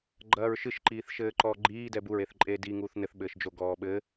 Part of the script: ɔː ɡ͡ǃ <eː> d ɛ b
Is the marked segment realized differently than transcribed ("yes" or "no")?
yes